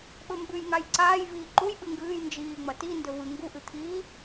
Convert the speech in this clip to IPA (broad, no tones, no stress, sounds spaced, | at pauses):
ɓ ɵ m b ʉ j ŋ a j ǀ aː j v iː ǃ u j ɓ ɨ ŋ ɡ ɨː j n d͡ʒ iː ŋ͡m ɐ t i n d ɵ v ɨ ŋ ɡ u ʔ ɨ t̪ʰ iː